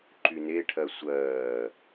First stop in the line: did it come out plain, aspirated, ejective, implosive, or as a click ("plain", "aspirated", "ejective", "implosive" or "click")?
click